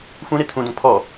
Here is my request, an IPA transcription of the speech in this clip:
fũɾe tʰũdõ pʰɔ

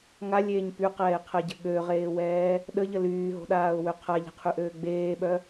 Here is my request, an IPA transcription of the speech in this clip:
ŋalʲeːɲ pyqɛːɪ̯qʰɛɟə ɠøʁeːwɛː | ɗəʎə lyːɦo̤ɗaːʊ̯wø qʰaʎɛ̤qʰyʔøː ɡ͡beːɓœ

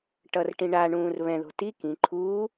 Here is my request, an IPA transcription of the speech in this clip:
ʈʌrʈĩ ɳaɳũːr βɛ̃ðo̤ ti kĩ ǃʰuː

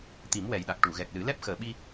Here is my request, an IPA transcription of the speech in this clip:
t̪i˨˩˦mwɛ˨˩jɗa˨˩k̚ ʈu˨˩˨ɣɛ˨˩k̚lɨ˨˩˦ lɛ˦˥p̚xəː˨˩ɓi˧

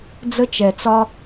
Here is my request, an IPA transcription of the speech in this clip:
d͡zə˦t͡ʃɛ˨t͡sɒ˦

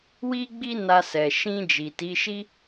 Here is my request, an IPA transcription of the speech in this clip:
wi˦ɡ͡bi˦ na˧sɛ˨ ʃĩ˧ d͡ʒi˨ti˨˦ʃi˦

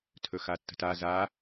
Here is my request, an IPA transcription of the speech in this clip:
tʰɵxatːə̤ta za

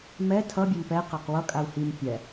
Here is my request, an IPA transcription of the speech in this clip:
mɛ tʰʌ bʲʌmpɛ qaqwʌ kʼau̯him pʲɛ

